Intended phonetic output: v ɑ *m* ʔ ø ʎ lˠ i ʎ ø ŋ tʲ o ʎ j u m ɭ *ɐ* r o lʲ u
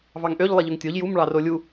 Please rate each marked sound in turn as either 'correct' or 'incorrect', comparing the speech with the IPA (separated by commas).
incorrect, incorrect